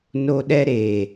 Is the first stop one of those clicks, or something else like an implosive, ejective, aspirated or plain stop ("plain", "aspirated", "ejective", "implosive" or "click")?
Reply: implosive